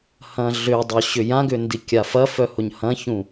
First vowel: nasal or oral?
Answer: nasal